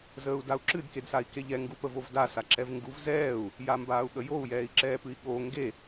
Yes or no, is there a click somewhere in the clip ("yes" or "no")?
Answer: yes